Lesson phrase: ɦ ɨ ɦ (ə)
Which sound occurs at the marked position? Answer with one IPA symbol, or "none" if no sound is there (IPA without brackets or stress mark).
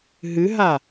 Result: a